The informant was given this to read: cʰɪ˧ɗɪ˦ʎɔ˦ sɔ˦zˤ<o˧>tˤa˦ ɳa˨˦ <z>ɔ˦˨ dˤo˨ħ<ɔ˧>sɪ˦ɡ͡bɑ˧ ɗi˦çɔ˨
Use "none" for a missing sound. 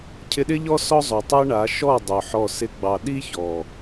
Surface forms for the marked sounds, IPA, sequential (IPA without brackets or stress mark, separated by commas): o˨, ʃ, ɔ˦˨